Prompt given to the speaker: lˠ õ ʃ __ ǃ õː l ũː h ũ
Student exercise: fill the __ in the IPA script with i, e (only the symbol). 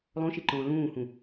i